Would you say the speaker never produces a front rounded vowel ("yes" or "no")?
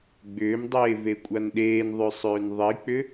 no